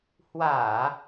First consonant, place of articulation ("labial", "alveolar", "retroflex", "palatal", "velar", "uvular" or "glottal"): glottal